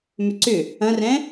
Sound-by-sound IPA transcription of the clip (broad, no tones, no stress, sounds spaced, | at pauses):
m ʏ ǀ ʏ | ɐ̃ r ɛ̃